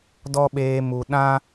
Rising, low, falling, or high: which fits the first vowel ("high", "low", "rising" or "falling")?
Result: high